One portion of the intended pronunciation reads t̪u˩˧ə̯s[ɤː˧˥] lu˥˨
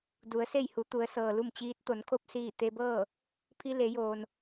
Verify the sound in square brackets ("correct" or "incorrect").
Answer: incorrect